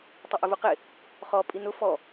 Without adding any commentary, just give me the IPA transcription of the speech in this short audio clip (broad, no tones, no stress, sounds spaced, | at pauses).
tˤ ɪ ʔ ɪ v u q ɪ | χ ɔ pʼ i n ʊ f ɔ